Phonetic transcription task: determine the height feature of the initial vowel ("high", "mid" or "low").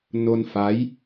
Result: mid